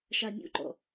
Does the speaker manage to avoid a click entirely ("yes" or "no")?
no